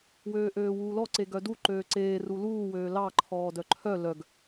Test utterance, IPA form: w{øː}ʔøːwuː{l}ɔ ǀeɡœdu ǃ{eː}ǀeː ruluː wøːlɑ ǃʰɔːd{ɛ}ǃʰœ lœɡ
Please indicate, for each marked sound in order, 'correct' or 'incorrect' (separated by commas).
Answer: correct, correct, incorrect, incorrect